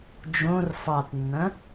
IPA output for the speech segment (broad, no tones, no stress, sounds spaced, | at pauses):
d͡ʒ õ r f ɑ t nː ɐ̃